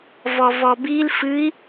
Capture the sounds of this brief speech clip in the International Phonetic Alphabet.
v ɔ v ɔ b i l f ɨ i̯

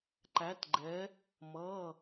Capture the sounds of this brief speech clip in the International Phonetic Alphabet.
ǃ æ˧˥ t ɡ͡ǃ ɛ˧˥ | m ʌ˧˥˧

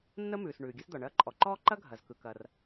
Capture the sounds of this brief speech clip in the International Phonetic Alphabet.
nː ə˥ m ʉː˩ s ɳ ʉː˩ ɡʲ ɐ˥ s d̪ ɒ˩ ɳ ɐː˥ ǃʼ ɔ˩ ǃ ɔː˥ ǃ ɐ˥ ɡʱ ɐ˩ z k ɯ˩ k ɐ˩ r

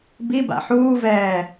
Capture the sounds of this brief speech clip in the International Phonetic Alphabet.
b i b a̰ ħ uː v ɛː

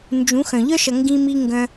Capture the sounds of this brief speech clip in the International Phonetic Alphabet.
n d͡ʒ ũ˨˦ x œ̃˨ ʎ œ˦ ʃ ʌ˨ ŋ ɡ ĩ˧ m i˧ ŋ ɡ œ̃˧

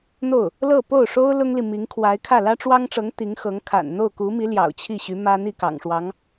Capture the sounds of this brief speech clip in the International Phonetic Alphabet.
n̪ o˥˩ ʊ̯ | l ɤ˥˧ p o˥˩ ʊ̯ ʂ o˥ ʊ̯ l ʊ˥ ŋ l i˨ m i˧˥ ŋ kʰ w a˧˥ ɪ̯ kʰ ä˥˩ l ä˥ ʈ͡ʂ w ɑ˥ ŋ ʈ͡ʂ ɤ˧˥ ŋ t̪ i˧˥ ŋ x ɤ˧˥ ŋ kʰ a̰˨˩ n n̪ o˥˩ ʊ̯ k u˧˥ m i˧˥ l j ɑ̰˨˩ ʊ̯ t͡ɕʰ i˥˩ ɕ y˧˥ m ä˥ n̪ i˥˩ k ɑ̰˨˩ ŋ ʂ w ɑ˧˥ ŋ

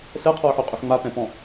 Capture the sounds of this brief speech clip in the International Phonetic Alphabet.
s ɛ qʰ ɔ ʊ̯ ħ ʉ qʼ ʉ ħ ŋ͡m a p ɛ̃ p ɔ̃

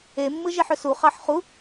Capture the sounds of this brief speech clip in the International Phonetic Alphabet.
e mː ɯ ʒ e ħ ø s u χ ɑ ħ χ u

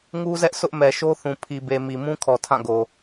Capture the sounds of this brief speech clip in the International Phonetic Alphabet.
ŋ u˦ z ɛ˦ ʔ s ʊ˦ ʔ m ɛ˨ ʃ o˦ θ ũ˨ pʰ i˨ b e˨ m i˨ m ũ˦ kʰ ɔ˨ tʰ ã˦˨ ɡ o˨

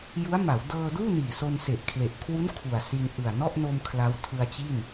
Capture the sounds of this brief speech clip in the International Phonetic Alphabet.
j u˦˥ a̯ m a˩˦ w d ɤː˧ d uː˥˩ n iː˨˩ s o˧ n s e˨˩ ʔ kʰ l e˨˩ ʔ kʰ w u˦˥ n kʰ u˨˩ a̯ s i˧ n ʔ ɯ˨˩ a̯ n ɔ˥˩ ʔ n o˧ m kʰ l a˦˥ w tʰ ɯ˧ a̯ t͡ɕ i˥˩ n

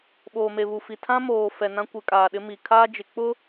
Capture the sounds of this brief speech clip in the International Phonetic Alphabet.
ɓ oː˨ m e˨ β u˨ f i˨ tʰ ã˦ m oː˨ f ɛ˨ n ã˦ kʷ ɪ˨˦ kʼ aː˨ ɗ ɪ˦ m i˨ kʰ aː˦ d͡ʒ ɪ˨ k͡p ʊ˦

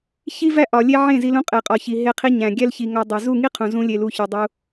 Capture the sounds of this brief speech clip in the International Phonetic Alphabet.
ç i˦ v æ˦ ʔ ɒ˨ lʲ e˦ ʕ ẽ˦˨ z i˧ l ũ˧ qʼ e˨ qʼ ɒ˨ ç i˨ ɦ e˧ qʰ i˦ ɲ æ̃˨ ɡʲ æ˦ l ç i˨ ŋ ɒ˧ dˤ e˨ z u˦˨ ŋ i˦ qʰ ũ˨ z ũ˦ lʲ e˧ l u˧ ç ɒ˧ dˤ u˧

